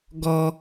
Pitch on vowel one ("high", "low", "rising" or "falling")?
low